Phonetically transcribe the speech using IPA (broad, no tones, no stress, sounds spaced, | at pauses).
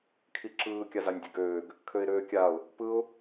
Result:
kʰ i ǁ ɯː kʲ a z a nʲ dʲ ø ɡ øː ɡ | kʰ ø ɪ̯ ɾ øː kʲ a ʊ̯ | p ɯ ʊ̯